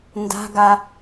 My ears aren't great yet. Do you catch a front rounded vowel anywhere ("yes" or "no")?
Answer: no